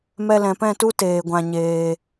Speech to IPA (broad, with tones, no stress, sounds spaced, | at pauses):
m ɛ˧ l ɛ̃˨ p ɛ̃˦˨ t u˦ t eː˨ ɡʷ ã˨ ɲ eː˨